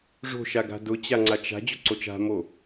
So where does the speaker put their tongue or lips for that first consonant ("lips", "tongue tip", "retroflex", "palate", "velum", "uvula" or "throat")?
retroflex